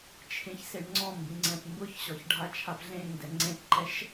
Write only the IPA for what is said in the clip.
t͡ʃʰ ẽ ç s e ɳ ŋ͡ǀ ɔ̃ m b ĩ ŋ͡ǀ ɛ̃ p m b ʊ ç ɕ ɔ ç ɖʱ a t͡ʃʰ a p ɮ ẽ ŋ d ɛ ŋ͡ǀ ẽ p ǃ ɛ ʃ

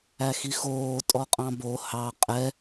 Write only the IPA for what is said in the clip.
æ x i x oː tʼ ɔ qʼ ɑ̃ b o h ɑ qʼ ɛ

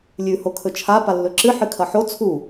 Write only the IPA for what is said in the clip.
lʲ ʉ h o kʰ ɵ t͡ʃʰ a p a lː ɵ ǁ ɨ ħ ɨ kʰ ɐ ħ o t͡sʰ u

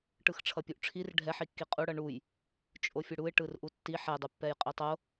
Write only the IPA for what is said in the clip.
ʈ ɯ x ʈ͡ʂʰ ʌ pʲ u ʔ ʈ͡ʂʰ i r ɖʱ ɛ ħ i kː i qʼ u ɽ ʌ ɳ u j | t͡ʃʼ o fʲ ɯ ɽ u ɪ̯ ʈ ɯ r ʔ u tː i ħ ɛ dˤ u pː ɛ j qʼ i tˤ o

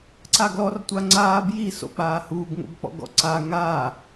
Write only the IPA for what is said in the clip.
ǀ a ɡ l ɔ r tʷ a ŋ͡ǀ aː b j i s o̰ k͡p aː h uː ɡ ŋ o̰ b k͡p ɔ̰ ɡ ɔ̰ ǀ a ŋ aː

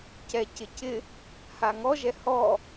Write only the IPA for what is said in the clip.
c ɛ c ɪ c ɪ | h a ŋ ɔ ʒ ɛ h ɔ

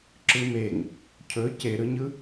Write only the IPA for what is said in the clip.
ǁ ɯ m e ŋ | cʰ ɵ c e ɾ ɯ ɲ ɯ

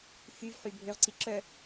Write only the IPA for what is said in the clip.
f y v ħ y bʱ ø ʁ ǀ i ǁ œ

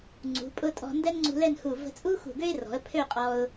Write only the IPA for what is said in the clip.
ŋ͡ǀ ṳ˩˧ pʼ ʊ˥˧ tʼ ɔ̤˧ n d ɛ˥ n ŋ͡ǀ ṳ˧ l ɛ˥˧ n h u˧˩ v ə̤˧ t͡sʼ u˥ x ṳ˧˩ ɡ ø˥ ɪ̯ r ɔ̤˩˧ ə̯ pʰ ø˥˧ qʼ ɔ˧ ʊ̯

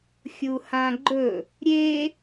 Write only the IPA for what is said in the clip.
xʲ u h ã ɡ͡ǃ ɵ | ɾʲ e

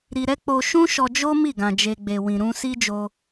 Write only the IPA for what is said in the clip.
ɾ i˧ ɾ ɛ˦ k͡p o˧ ʃ ũ˦ ʃ ɔ˧ d͡ʒ o˦ m i˦˨ ɡ ã˨ d͡ʒ e˨ ɡ͡b e˨ w ĩ˨ ɾ ũ˧ s i˦ d͡ʒ o˧

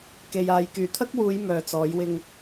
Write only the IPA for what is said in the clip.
k e˨ j aː˨ j k yː˨˩ t̪ʰ ɐ˥ k̚ w uː˨˧ j m œː˨ t͡s ɔː˨˥ j w ɪ˧ ŋ

